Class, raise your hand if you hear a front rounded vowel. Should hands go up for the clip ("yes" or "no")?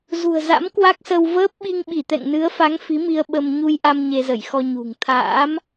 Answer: no